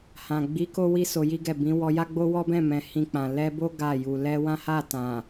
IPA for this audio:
h ã˨ ɡ͡b i˨˦ k o˦ w i˦ s o˧ j i˦ ɡ ɛ˦˨ b ĩ˨˦ w ɔ˧ j a˦ ɡ͡b o˦ w ɔ˦ b ɛ̃˦˨ m ɛ̃˨ h ĩ˧ k͡p ã˨ l ɛ˧ b o˦ ɡ a˦˨ j u˨ l ɛ˧ w ã˦ h a˦˨ t ã˨

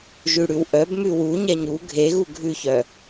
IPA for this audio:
ʒ ʉ ɽ ʉ w ʔ œ b m ʉ w u ɲ ɛ ɲ u ɡʱ e ɣ u ɡʱ ʉ ç œ

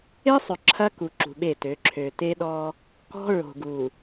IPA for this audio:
e˦ sˤ ɵ˨ ǁʰ ɐ˦ k u˨ ǁ ṳ˨ ɓ e˦˨ t ø˨˦ ǁʰ ø˨ t e˦ ɗ ɔ˦ | k ɔ̤˦ ɹ o̤˨ ɡ u˨

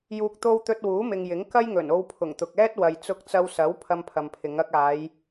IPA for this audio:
j uː˨ k̚ t̪ o˧ w t̪ ɵ˧ t̚ w uː˨˥ m ɪ˨ ŋ j ɪ˨˥ ŋ k ɐ˥ j ŋ ɵ˨˩ n o˧ w pʰ ʊ˨˩ ŋ t̪ ʊ˨ k̚ ɛː˥ t̚ w ɐ˨ j t͡s ʊ˧ k̚ t͡s ɐ˧ w s ɐ˨˥ w pʰ ɐ˧ m pʰ ɐ˨ m pʰ ɪ˨˧ ŋ ɐ˧ k̚ aː˨˧ j

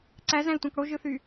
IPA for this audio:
ǀ æ z æ̃ i̯ tʷ ɑ̃ k ɽ o ʒ ɯ θ y

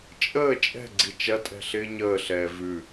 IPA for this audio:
t͡ʃʼ əː t͡ʃʼ ɛ̤ ɡ͡ǀ i t͡ʃ ɐ tʼ ɛ̤ ɬ ɪː ɲ əː ɬ ɛː v ʉ

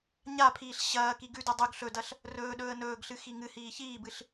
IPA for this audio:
ɲ a pʰ iː ɬ ɕ ɐː k i ɡ ʉ d u dˤ ʉ ɡ ɬ ɵ d ɐ ɬ | r ɵː ɗ ɵː ə̯ n ɵː ɡ ɬ ɨ x i ŋ ɨ h iː ç iː b ɨ ɬ

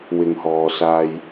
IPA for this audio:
w ɪ˨ ŋ h ɔː˨ s aː˧ j

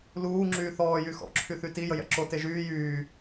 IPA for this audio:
l uː ŋ͡ǁ yː θ ɔː j y x ɔ̰ ǁʰ y θ y t i j ə j ɛ̰ ǁ o t e ʒ yː j yː

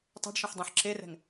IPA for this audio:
tˤ e̤ ɖ ʃ ɛ̃ ħ dˤ ẽ ħ ǁ e r ɛ̤ ŋ

